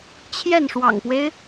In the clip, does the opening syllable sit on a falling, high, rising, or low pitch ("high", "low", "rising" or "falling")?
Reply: falling